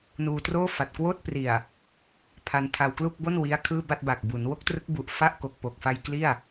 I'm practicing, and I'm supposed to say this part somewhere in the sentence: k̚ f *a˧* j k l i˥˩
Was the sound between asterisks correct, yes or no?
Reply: yes